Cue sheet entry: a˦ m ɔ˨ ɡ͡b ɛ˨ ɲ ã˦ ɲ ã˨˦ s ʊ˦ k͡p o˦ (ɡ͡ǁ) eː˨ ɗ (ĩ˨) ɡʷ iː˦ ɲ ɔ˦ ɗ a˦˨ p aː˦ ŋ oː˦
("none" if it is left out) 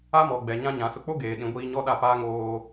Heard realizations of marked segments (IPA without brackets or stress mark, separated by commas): ɡ, ĩ˨˦